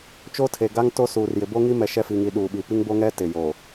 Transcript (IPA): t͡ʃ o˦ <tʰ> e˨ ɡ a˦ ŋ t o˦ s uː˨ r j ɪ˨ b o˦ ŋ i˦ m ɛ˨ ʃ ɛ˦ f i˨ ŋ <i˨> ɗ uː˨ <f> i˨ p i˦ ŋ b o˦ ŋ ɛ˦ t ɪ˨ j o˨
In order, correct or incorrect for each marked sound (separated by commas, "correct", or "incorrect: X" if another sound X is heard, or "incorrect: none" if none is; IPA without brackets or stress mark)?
correct, correct, incorrect: ɓ